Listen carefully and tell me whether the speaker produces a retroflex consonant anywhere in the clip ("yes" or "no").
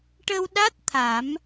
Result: yes